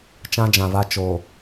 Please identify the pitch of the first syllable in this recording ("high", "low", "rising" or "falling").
high